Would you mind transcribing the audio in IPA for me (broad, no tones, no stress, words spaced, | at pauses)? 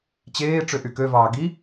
t͡ɕeː ʈ͡ʂøʔykøvɑː ɡi